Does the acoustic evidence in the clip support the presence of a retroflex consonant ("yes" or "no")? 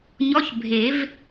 no